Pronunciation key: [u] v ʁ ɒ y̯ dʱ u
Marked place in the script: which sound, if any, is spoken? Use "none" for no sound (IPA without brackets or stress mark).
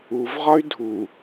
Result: u